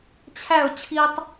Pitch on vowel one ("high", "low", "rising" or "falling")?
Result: falling